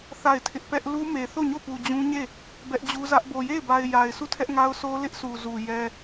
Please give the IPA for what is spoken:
θ a˦˨ ɪ̯ tʰ ɪ˦ ʔ p ɛ˦ ʔ l u˦ m e˨ θ o˦˨ ɲ o˦˨ p u˨ d͡ʑ ũ˦ ɲ e˦˨ | b ɛ˦ ʔ d͡ʑ u˦ z ä˦ ʔ b o˨ j e˦˨ ɪ̯ b a˨ ɪ̯ j a˨ ɪ̯ s u˦˨ tʰ ɛ˦ ʔ ŋ a˦ ʊ̯ sʰ o˦ l ɪ˦ ʔ s u˨ z u˨ j ɛ˦

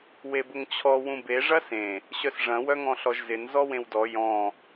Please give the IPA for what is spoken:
w e b ʊ ŋ t͡ɕʰ ɔ w ũ b e ʐ ɐ s ẽ | ɕ œ s ʐ ɐ̃ w œ ŋ ɔ̃ ɬ ɔ ʒ z ɪ n z ɔ w ẽ w d ɔ j ɔ̃

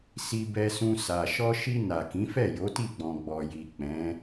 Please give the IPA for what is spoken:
s i˧ b ɛ˧ s ũ˧ s a˨ ʃ ɔ˧ ʃ i˧ n a˨ k ĩ˨˦ f ɛ˦˨ j o˨˦ t i˦˨ ɡ͡b ɔ̃˨ ɡ͡b ɔ˨ j i˨ k͡p ɛ̃˨˦

